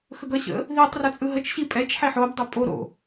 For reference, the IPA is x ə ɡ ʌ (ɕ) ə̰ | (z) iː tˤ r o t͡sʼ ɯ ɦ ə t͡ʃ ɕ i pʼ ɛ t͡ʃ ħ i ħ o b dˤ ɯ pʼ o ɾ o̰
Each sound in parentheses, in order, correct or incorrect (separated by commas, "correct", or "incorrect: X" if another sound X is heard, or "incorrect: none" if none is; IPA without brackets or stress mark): correct, incorrect: ð